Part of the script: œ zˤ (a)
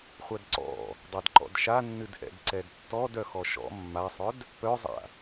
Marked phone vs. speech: incorrect: a̰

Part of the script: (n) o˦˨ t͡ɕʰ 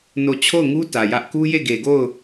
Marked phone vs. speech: correct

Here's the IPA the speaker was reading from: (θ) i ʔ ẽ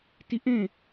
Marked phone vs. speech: incorrect: t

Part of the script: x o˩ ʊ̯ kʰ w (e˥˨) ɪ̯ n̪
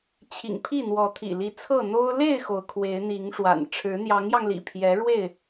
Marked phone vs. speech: incorrect: e˨˦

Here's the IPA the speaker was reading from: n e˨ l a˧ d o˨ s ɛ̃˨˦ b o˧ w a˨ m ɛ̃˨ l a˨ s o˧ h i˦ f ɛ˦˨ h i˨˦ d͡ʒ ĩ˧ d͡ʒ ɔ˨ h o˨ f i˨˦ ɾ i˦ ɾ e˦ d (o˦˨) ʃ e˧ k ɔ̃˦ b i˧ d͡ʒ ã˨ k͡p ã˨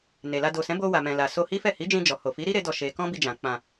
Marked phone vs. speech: incorrect: ɔ˦˨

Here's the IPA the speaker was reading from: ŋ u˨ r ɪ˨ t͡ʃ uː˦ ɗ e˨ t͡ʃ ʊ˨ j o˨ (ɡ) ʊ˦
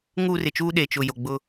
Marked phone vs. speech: incorrect: ɡ͡b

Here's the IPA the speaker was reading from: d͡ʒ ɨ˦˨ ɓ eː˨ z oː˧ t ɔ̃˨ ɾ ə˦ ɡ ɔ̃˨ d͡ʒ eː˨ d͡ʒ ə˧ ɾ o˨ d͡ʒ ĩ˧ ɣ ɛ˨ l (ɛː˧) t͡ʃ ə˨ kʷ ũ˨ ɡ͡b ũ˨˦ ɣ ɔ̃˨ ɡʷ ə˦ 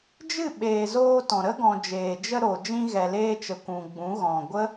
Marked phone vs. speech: incorrect: eː˧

